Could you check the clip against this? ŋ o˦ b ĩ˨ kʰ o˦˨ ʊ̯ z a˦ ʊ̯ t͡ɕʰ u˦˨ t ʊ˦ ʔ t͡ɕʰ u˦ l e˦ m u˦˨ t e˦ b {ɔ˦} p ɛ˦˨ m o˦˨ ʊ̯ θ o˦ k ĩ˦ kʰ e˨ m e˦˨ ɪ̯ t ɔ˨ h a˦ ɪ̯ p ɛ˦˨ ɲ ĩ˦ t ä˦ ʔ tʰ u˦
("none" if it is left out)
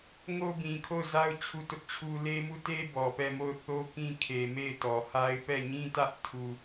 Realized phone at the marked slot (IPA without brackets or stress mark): ɔ˨